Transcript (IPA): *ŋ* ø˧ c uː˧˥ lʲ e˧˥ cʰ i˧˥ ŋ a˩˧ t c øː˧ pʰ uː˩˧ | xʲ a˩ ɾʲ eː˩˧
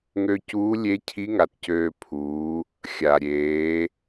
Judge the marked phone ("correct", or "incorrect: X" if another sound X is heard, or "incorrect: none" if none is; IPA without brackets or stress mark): correct